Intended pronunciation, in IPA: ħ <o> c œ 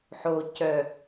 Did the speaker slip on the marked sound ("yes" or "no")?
no